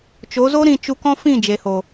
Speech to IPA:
t͡ʃo˨˦zo˦ ɾĩ˧t͡ʃu˧kɔ̃˦ fĩ˦˨d͡ʒe˨ho˨

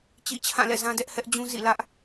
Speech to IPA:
t͡ɕḭ˦˨t͡ɕʰã˦˨lɛ̰˦˨ zã˦dɛ˦ʔhɛ˦ʔd͡ʑũ˦ zḭ˦˨lä˦ʔ

